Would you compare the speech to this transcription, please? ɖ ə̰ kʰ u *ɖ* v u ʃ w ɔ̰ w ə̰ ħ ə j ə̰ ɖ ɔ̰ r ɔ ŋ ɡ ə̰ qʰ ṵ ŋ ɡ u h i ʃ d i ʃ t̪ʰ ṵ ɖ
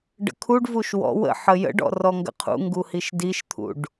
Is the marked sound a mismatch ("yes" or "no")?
no